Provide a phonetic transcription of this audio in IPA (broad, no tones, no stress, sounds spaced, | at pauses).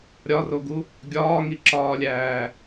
ɾʲ ɒ r o ɡ u | ɡʲ ɒː ŋ i ǁ ɒː lʲ æː